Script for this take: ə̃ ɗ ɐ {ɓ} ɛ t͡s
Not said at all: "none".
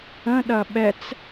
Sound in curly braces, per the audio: ɓ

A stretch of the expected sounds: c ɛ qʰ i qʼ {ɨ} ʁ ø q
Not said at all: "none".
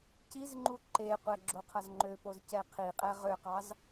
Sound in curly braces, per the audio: ɛ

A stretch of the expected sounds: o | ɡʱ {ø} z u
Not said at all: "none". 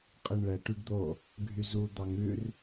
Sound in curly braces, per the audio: y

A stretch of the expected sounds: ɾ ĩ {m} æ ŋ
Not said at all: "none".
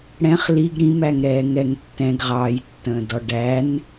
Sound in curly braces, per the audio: m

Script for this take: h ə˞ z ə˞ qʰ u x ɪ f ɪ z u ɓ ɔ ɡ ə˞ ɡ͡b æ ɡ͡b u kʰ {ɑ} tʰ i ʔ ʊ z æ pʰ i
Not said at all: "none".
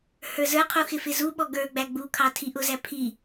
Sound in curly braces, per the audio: ɑ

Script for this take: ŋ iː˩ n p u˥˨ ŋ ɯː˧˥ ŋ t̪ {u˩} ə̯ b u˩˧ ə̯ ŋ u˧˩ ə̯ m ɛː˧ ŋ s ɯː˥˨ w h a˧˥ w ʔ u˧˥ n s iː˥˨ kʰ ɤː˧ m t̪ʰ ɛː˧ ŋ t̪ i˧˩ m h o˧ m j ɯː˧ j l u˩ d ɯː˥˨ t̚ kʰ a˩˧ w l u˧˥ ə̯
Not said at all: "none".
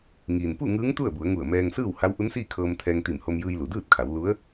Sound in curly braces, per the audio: u˥˨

